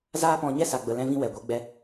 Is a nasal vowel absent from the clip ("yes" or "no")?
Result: no